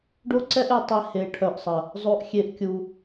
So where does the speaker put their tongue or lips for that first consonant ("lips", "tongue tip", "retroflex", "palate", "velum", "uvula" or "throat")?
retroflex